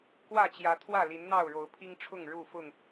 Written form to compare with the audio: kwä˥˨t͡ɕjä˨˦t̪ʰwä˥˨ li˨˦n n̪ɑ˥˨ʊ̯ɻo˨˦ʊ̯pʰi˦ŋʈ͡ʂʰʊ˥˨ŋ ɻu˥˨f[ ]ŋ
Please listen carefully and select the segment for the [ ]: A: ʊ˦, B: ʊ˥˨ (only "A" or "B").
B